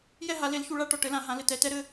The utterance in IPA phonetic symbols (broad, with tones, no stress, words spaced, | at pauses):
jɛ˥˨ɦa˨˩˦le˩˥lçu˨ ɭa˧˥˧ʈɔ˨ ʈɘ˩˥lã˨˩˦ɦã˩˥ lɘ˨tɛ˨˩˦tɛ˦˥ɾɘ˧˥˧